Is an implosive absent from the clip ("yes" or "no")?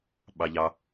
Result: no